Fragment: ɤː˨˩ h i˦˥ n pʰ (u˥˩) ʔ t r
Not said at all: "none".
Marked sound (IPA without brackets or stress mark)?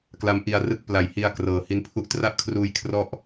u˥˩